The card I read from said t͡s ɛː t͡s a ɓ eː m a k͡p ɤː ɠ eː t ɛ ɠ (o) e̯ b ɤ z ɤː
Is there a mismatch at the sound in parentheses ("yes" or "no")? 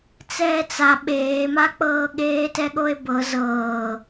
no